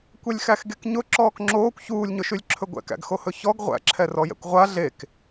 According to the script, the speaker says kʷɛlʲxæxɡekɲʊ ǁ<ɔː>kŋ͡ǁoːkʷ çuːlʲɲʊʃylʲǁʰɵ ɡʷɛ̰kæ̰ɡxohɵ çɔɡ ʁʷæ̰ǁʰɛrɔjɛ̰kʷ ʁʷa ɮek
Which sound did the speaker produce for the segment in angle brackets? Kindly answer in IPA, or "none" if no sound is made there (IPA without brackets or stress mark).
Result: ɔː